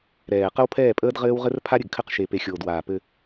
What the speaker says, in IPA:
ɾ ɛː˨ q ə˦ w pʰ ɛː˦˨ pʼ əː˦ d ʁ ɘː˦ w ʁ ɘ˦ r pʰ a˦ ɾʲ ɘ˨ ɡ kʰ ɘ˦ q ʃ e˨ p e˨ xʲ oː˨ d w aː˨ p ɘ˦

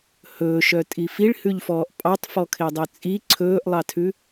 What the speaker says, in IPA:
h ɵː ʃ œ tʼ i f i ɭ h ʉ ʎ f ɔː ʔ pʼ ɑ tˤ f ɔ kʰ e dˤ œ t͡sʼ i ǀʰ ɵː ʔ lˠ ɑ tʰ ʉ

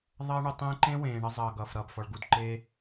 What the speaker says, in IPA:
ðˤ ʌː˧ ɳ u˨ tˤ ẽː˧ ǃ ẽ˦ w ẽː˨ ɳ ʌ˧ zˤ ʌː˨ ɡ ʌː˨ f ɾ ʌː˨ b f ɔ˨ ɭ ɡ u˨ d ǃ e˧

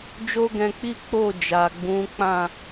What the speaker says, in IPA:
d͡ʒ o˦ ɡ ɛ̃˧ k͡p i˦ k͡p o˦˨ d͡ʒ a˨ ɡ͡b ũ˨˦ k͡p ã˦˨

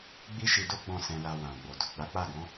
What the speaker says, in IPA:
ɡ͡b i˦ ʃ i˧ d o˦ ɡ͡b ɔ̃˦˨ s ɛ̃˧ l a˧ w ã˨ ɡ͡b o˨ d u˨ ɡ͡b a˨˦ k͡p a˦˨ ɡ ɔ̃˨˦

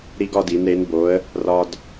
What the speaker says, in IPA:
ɾ i˥ ɡ ɒ˥ d i˨˥ n ɾ e˨˥ n b o˨˥ ə̯ | r ɒ˥ d

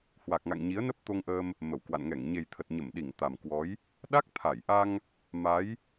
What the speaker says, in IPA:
h w a˨˩ k̚ ŋ a̰˧˨ ŋ ɲ i˨˦ ə̯ n ə˦˥ p̚ t̪ o˧ ŋ ʔ əː˧ m | m ə˧˩ w k w a̰˧˨ n ŋ ɛ˧˩ ŋ ɲ e˨˩ j t̪ʰ ə˨˩ t̚ ɲ ə˧˩ m ɗ i˧˩ ŋ t̪ a˨˩ m k w ɔ˨˦ j | ɗ a˦˥ k̚ t̪ʰ a˧˩ j ʔ a˧ ŋ | m a˨˦ j

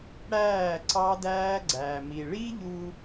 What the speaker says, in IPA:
ɽ æː˦˨ ǀ ɑ˦ d æː˦ ɡ͡ǀ æː˨ m i˨ ɭ i˦ ʎ u˦

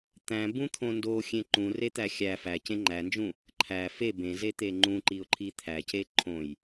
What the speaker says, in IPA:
t̪ æ̃ b ũ t̪ʰ õ n d o xʲ ẽ ǃ ũ r e t̪ æ xʲ æ f æ c ẽ ŋ͡ǃ æ n d͡ʒ ũ | ǃʰ æ f e b ẽ z e t̪ e ŋ͡ǃ ũ ǃ i ʊ̯ ǃʰ i t̪ʰ æ c e ǃʰ õ j

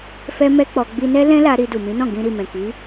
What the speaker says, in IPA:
f ɛ˦ m ɛ˦ k͡p ɔ˧ ɡ͡b i˧ n ɛ˦ l ɛ̃˦ l a˧ ɾ i˧ d u˨ m ĩ˨˦ n ɔ̃˦˨ ɡ ĩ˧ ɾ i˨ m ɛ̃˨ k i˨˦

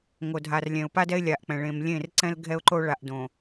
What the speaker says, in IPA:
ŋ o˨ dʱ a˨ r lʲ ɛ̃˨ ʊ̯ p a˦ d ɛ˦ ɪ̯ lʲ a˨ ʔ k͡p ɛ̃˨ ɭ ẽ˨ m lʲ ẽ˦˨ r ǀ ɛ̃˦ l ɡʱ ɛ˦ ʊ̯ ǃ o˦ ɭ a˨ ʔ d õ˨

